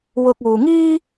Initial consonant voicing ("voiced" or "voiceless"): voiced